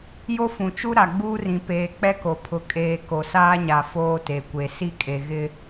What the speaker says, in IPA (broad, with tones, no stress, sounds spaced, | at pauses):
j o˦ f ũ˨ t͡ʃ u˦ ɾ a˨ ɡ͡b uː˦ r ĩ˨ p eː˨ k͡p ɛ˦ k o˨ pʰ ʊ˨ kʼ eː˨ k o˨ s aː˦ ɲ a˨ f oː˦ t e˨ kʷ e˨ s i˦ kʼ e˨ ɣ ɪ˦